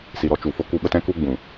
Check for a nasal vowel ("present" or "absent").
present